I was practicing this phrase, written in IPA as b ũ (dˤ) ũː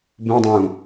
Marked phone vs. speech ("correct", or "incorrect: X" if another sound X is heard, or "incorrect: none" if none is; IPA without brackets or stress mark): correct